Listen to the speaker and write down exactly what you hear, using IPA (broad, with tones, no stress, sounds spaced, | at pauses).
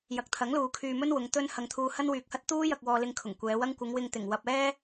j ɐ˨ k̚ t̪ʰ ɐ˨˥ ŋ l uː˨ kʰ yː˧ m ɵ˥ n w ʊ˨˧ ŋ t̪ ɵ˥ n h ɐ˧ ŋ t̪ʰ uː˧ h ɐ˥ n w yː˨ k̚ h ɐ˥ t̚ t̪ uː˥ j ɐ˧ k̚ w ɔː˧ l ɪ˧ ŋ kʰ ʊ˨˩ ŋ kʷ ɛː˨˧ w ɐ˥ ŋ kʷ ɪ˨˧ ŋ w ɪ˧ ŋ t̪ ɪ˨˩ ŋ w ɐ˧ p̚ ɛː˥